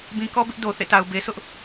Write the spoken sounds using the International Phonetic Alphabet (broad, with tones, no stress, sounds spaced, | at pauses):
b ĩ˨ k ɔ˦ b ɪ˦ ʔ d o˨ θ ḛ˦˨ t a˨ ʊ̯ b e˨ sʰ ʊ˦ ʔ